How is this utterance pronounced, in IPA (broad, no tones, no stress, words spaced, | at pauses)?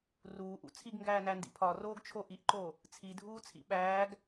ruːʔṵ t͡sʰiɡŋɡæːnændḭ pʰɒroːɡt͡ʃʰo ʔiʔǃo | t͡sʰidʱuːt͡sʰḭ ɓæːɡ